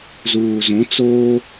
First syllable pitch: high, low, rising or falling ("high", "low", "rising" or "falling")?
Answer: low